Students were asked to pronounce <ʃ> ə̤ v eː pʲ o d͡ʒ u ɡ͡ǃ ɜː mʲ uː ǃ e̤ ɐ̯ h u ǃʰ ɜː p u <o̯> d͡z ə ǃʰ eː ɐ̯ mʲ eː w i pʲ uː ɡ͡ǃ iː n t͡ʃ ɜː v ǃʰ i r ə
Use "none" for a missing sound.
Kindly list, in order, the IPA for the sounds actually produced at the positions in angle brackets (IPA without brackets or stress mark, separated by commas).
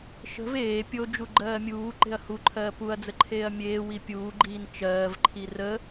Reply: ʃ, ɐ̯